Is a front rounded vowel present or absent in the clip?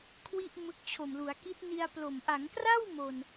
absent